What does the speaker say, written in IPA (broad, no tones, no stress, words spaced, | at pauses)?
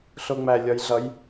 ɬʊŋ͡mælʲɒjɮʌj